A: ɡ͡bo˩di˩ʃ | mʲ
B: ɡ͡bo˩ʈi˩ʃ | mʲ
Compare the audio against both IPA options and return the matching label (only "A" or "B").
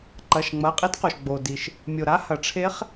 A